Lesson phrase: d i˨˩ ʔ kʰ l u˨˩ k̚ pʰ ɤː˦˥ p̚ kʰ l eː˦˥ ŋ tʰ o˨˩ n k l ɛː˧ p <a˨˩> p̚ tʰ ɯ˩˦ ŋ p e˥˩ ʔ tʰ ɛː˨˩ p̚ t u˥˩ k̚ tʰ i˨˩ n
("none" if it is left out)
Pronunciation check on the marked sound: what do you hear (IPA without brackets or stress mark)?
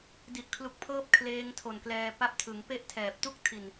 a˦˥